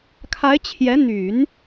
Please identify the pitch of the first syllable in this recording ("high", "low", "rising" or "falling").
rising